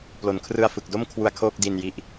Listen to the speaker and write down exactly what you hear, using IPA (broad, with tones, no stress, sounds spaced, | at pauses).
p l o˩˦ n kʰ r ɯ˧ a̯ f ɯ˨˩ k̚ d o˥˩ m kʰ w u˧ a̯ kʰ oː˥˩ k̚ d i˧ n j i˦˥ ʔ